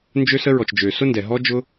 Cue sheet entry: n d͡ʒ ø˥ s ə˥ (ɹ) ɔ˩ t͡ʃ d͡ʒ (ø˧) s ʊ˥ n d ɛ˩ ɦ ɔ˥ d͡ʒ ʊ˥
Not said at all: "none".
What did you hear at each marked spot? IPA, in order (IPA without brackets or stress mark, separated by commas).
ɹ, ø˩